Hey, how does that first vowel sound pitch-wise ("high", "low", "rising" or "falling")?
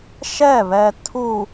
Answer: falling